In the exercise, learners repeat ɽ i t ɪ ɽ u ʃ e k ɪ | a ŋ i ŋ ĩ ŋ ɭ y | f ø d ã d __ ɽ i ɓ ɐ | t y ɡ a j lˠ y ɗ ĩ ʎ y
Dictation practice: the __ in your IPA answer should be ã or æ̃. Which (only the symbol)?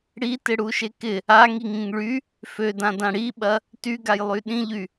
ã